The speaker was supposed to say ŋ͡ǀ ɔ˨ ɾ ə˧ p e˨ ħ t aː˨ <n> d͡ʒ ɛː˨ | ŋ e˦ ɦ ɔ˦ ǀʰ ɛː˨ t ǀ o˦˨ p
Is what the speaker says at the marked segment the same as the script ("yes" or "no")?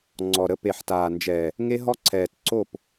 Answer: yes